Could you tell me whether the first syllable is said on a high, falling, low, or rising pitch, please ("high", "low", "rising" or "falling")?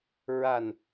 low